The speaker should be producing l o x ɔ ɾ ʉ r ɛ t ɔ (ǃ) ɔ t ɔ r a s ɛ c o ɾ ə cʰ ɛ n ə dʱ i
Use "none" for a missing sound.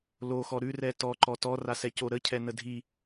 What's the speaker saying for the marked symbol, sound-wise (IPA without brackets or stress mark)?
ǃ